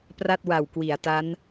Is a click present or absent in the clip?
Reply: absent